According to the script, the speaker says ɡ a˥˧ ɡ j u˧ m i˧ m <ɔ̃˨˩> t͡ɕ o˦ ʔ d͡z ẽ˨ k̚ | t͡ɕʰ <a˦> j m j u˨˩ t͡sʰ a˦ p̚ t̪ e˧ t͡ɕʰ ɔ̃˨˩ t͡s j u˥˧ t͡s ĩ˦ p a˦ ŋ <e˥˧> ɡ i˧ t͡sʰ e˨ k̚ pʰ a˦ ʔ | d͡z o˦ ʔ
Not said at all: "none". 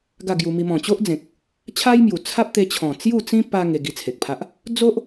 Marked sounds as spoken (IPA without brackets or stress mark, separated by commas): ɔ̃˨˩, a˦, e˧